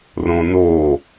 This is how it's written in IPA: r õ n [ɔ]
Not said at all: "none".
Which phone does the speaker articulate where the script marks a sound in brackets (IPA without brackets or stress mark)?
o